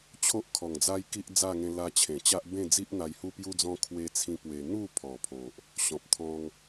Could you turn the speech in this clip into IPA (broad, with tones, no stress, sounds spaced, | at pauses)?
t͡ɕʰ o˦ ʔ kʰ ɔ˨˩ ŋ d͡z a˦ j k i˦ ʔ d͡z a˥˧ ŋ ẽ˧ l a˧ t͡ɕʰ ẽ˨˩ t͡ɕ a˦ ʔ b ẽ˥˧ d͡z i˦ ʔ n̪ a˧ j h u˦ p j u˦ d͡z ɔ̃˦ kʰ w e˦ t͡sʰ ĩ˦ p w e˧ n̪ u˥˧ pʰ ɔ˨˩ pʰ o˨ ʔ | ɕ ɔ̃˨ p̚ t̪ʰ ɔ̃˧ ŋ